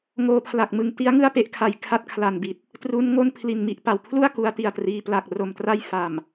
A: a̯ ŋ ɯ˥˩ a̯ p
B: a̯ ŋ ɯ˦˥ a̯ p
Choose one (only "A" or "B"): A